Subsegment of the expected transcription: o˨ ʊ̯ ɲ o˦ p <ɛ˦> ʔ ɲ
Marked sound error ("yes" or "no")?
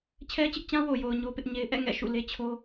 yes